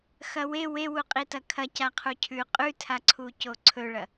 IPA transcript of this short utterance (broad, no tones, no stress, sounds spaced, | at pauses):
x ɐ w e w e w u qʼ i t ɐ kʰ ɐ c a qʰ u cʰ ʉ qʼ ʉ tʰ a ǀʰ u c o ǀʰ ɵ ɭ ɐ